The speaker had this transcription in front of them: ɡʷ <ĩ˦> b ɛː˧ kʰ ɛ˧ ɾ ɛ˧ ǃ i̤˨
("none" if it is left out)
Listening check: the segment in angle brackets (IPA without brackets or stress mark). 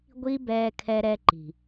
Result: i˦